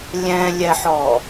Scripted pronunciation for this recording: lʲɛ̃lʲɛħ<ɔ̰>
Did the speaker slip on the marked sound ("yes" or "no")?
yes